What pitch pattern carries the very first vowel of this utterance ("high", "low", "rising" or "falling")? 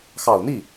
low